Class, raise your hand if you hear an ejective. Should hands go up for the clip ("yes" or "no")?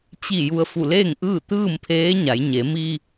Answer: no